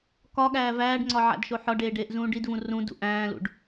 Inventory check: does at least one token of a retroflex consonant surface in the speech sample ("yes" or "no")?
yes